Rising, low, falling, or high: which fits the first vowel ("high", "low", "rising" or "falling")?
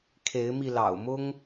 rising